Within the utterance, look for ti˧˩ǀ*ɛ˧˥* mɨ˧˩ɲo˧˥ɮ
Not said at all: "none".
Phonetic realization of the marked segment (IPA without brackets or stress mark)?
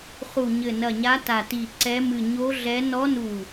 ɛ˧˥